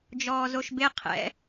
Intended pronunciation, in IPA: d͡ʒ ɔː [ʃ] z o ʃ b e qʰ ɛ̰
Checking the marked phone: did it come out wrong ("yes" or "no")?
yes